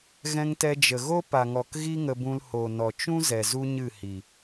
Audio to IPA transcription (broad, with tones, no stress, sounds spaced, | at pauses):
ɣ ɛ̃˧ ŋ t ɛ˧ d͡ʒ ə˨ ɣ o˦ p a˨ ŋ ɔ˨ k ɣ i˦ ŋ ə˧ b ũ˧ l h o˨ n ɔ˨ t͡ʃ ũ˦ z ɛ˨ z u˦ ɲ ɨ˦˨ h i˨